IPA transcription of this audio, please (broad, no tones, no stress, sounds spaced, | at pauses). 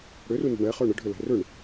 ɽ ʏ r u n ə̤ ɳ ɛ χ œ ɳ ə ɖʱ ʏ l ɛ̤ r ʏ ɳ